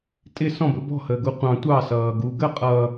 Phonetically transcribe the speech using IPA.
tʼ ɪ s ɔ̃ b ə̰ b ɔ̤ h əː ɡ u qʷ ɑ̃ tʷ ɑ s ʌː ɡ u ɡ ə qʼ ʌ

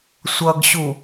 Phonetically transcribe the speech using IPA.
sʷ ʌ ɡ ɕ u

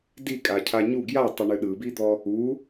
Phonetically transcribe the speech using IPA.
d i kʼ a cʰ a ɲ u ɡ j a tˤ ɨ ɳ ɨ ɗ ɯ b i d̪ ɔ | u

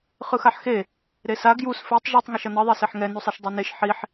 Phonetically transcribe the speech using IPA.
χ ɯ x a ħ x e | ɾ e s a ɡ j u s f e tˤ ʒ u tˤ ŋ e ʃ ʌ n ʌ ðˤ ɛ s e ħ ŋ ɛ n u sˤ i ʃ dˤ u n e ʃ ħ i ħ

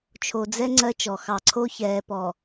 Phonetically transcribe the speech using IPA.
t͡ʃʰ o˨ d͡z ɛ˦ ŋ͡ǀ ɜ˦ t͡ʃ ɔ˨ x ɑ˨ ǀʰ o˦ ç ɛː˨ p ɔ˨

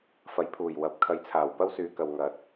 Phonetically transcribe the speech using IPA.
f ɐ˨˥ j pʰ uː˨˩ j w ɐ˨˥ p̚ kʰ ɐ˨˥ j t͡sʰ aː˨˩ w p ɐ˥ w s yː˨˧ k ɐ˨ w ŋ ɐ˨˥ t̚

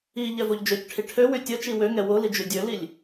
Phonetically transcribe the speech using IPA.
i ʎ ɛ v o ʎ d͡ʒ ø c ʈʰ i ʈʰ ø w y tʲ ə t͡ʃ i w ø ŋ ɛ w o l i d͡ʒ y dʲ ø l i lʲ

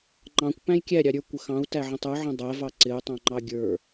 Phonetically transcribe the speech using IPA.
ŋ͡ǃ ɑ̃ kʷ p æ̃ j kʲ æ ɾʲ ɑ ɾʲ ə˞ kʷ ə x ɑ̃ u̯ t æ ʕ ə̃ tˤ ə˞ ʕ ə̃ dˤ æ v ɑ ǀ ɪ u̯ tˤ ɑ̃ ŋ͡ǃ ɑ ɡʲ ə˞

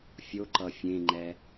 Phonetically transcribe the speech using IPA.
fʲ o ǃ ʌ fʲ ẽ ŋ͡ǃ ɛ

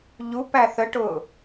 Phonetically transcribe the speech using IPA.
ʎ u p æ θ ə ʈ ʊː

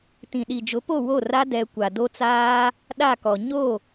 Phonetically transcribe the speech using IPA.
t ĩ˨ ɗ i˨ d͡ʒ ʊ˨˦ p o˦˨ w o˦˨ r a˦ d ɛ˦ kʷ a˨ d o˦ t͡s aː˦ | ɗ a˦˨ k ɔ˨ ɲ o˦˨

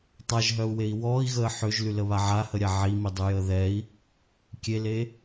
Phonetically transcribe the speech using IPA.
tˤ a ʒ ɦ œ u̯ w e i̯ w ɔː i̯ ɣ əː ħ ø ʒ l y l ə β a ʕ a h ə ɾʲ a ʕ i m i dˤ y j əː ð ɛ i̯ | kʲ e l e

